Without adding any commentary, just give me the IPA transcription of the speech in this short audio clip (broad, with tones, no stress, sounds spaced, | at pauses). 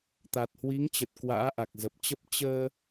t̪ a˨˩ t̚ h w i˨˦ ŋ t͡ɕ ə˨˩ t̚ k w a̰ː˧˥ ʔ a˨˩ k̚ z ə˨˩ p̚ t͡ɕ ə˦˥ p̚ t͡ɕ əː˧